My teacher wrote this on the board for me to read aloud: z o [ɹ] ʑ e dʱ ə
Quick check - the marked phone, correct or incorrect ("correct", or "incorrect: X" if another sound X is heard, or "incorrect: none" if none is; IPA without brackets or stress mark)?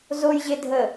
incorrect: j